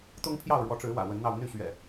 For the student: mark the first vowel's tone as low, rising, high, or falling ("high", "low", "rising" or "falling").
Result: high